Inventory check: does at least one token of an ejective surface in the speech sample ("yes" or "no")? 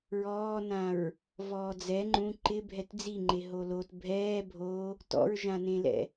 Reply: no